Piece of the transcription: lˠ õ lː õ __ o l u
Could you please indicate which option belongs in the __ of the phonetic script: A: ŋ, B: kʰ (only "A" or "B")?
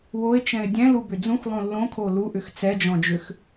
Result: B